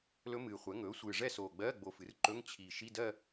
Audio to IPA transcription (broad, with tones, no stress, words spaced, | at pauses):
lɵ˦˥mɨː˨˩χʷɛ˩˥ ŋɵː˩˥sʷɨː˨˩ʐɛ˥˧soː˨˩ ɡ͡bɜ˧˥˧ ɡ͡bo˧fɨ˩˥r ǃɵ˧˥˧ŋt͡ɕʰi˨˩ ʃi˧˥˧dɜ˥˧